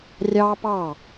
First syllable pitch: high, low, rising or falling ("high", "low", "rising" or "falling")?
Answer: high